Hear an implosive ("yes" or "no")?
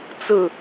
no